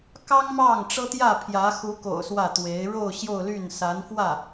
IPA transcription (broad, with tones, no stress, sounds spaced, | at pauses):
k ɑ˥ ŋ m ɑ˥˩ ŋ ʈ͡ʂ ɤ˥ t̪ j ä˥˩ pʰ j ä˧˥ x u˧˥ k o̰˨˩ ʊ̯ s w ä˥˩ t̪ w e˧˥ ɪ̯ ɻ o˥˧ ʊ̯ ɕ j o˥˧ ʊ̯ l y˥˩ n s a˧˥ n f w ä˥˩